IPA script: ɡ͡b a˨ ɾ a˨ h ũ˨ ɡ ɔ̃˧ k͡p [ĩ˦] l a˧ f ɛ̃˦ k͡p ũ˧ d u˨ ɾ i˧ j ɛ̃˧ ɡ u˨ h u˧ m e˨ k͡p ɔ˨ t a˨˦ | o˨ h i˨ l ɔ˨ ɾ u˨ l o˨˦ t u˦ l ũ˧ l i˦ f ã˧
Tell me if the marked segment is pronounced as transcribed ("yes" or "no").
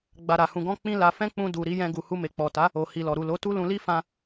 yes